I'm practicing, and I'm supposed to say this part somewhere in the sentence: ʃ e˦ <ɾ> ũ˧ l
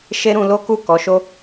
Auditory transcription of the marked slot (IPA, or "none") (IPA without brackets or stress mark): ɾ